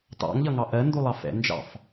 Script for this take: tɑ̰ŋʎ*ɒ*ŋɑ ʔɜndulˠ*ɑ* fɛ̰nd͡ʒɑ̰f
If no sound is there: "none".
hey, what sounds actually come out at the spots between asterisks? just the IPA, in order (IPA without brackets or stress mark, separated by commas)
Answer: ʌ, ɑ